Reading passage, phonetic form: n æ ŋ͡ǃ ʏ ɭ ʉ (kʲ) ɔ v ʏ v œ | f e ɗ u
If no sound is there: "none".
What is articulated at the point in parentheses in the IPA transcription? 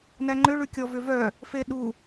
kʲ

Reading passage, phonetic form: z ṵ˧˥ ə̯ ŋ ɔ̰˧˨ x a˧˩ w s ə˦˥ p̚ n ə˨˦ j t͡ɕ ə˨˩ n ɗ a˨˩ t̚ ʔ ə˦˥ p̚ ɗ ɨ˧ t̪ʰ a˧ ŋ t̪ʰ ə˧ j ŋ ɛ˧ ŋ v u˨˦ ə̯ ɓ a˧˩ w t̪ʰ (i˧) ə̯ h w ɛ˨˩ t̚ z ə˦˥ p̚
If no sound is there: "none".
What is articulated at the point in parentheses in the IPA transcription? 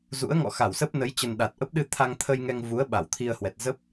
i˧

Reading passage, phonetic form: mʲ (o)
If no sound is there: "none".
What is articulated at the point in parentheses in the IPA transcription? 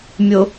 o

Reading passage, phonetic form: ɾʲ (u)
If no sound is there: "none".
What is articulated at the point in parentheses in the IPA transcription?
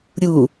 u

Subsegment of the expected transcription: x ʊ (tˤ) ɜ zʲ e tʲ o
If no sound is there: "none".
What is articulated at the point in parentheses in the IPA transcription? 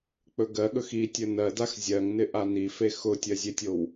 tʲ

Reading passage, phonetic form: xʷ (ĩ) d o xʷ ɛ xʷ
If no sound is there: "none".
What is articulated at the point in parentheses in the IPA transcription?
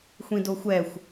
ĩ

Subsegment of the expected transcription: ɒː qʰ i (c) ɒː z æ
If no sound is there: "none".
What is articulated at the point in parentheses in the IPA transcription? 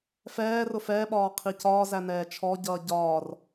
c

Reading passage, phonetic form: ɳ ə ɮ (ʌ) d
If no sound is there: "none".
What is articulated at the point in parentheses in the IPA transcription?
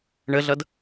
ʌ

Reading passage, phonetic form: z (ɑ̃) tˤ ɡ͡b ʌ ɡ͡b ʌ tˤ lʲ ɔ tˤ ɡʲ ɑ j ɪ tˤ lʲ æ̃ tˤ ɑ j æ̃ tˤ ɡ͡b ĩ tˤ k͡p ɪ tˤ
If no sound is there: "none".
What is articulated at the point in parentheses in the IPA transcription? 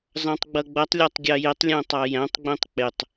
ɑ̃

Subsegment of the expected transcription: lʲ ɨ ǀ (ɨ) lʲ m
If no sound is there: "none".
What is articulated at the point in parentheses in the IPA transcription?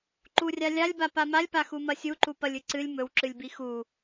ɨ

